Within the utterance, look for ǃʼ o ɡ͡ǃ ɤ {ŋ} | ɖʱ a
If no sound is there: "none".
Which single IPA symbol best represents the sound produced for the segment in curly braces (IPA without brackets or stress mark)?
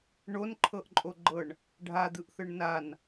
ɳ